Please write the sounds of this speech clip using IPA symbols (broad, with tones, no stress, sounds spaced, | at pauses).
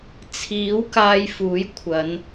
t͡sʰ iː˨˥ w k aː˧ j f uː˨˥ j kʷʰ ɐ˨˧ n